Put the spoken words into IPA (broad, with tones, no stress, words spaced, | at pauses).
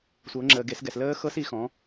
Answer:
sʷɤ˩˧ŋ͡ǁəː˩ɡe˩˧sɡɛ˩s ləː˦˥xɤ˦˥s i˩˧xɔ̃˩˧